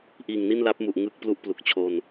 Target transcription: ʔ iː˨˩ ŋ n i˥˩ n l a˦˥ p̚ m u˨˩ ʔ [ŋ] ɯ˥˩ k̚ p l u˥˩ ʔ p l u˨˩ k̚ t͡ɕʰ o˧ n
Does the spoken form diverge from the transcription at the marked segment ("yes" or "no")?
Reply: no